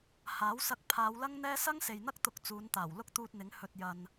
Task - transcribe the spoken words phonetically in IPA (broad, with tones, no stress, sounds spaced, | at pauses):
h aː˨˥ w s ɐ˧ k̚ pʰ aː˨˧ w l ɐ˥ ŋ n̪ ɛː˥ s ɐ˥ ŋ s e˨ j n̪ ɐ˥ k̚ t̪ ʊ˧ k̚ t͡s uː˨˧ n t̪ aː˨˩ w l ʊ˥ k̚ t̪ uː˧ t̚ n̪ ɪ˨˥ ŋ h ɵ˧ t̚ j ɐ˧ n